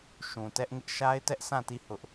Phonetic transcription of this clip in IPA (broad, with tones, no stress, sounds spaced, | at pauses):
ʃ ũ˨ t ɛ˦ ʔ ŋ ɪ˦ ʔ ʃ a˦ ɪ̯ t ɛ˦ ʔ sʰ ã˦˨ t i˦˨ h ʊ˦ ʔ